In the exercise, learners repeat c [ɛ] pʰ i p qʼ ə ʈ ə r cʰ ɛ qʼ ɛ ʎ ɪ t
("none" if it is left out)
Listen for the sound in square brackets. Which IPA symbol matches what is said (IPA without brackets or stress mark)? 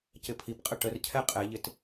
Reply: ɪ